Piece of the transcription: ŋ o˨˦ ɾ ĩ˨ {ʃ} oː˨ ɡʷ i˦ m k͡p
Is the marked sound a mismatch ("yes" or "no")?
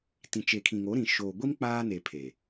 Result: no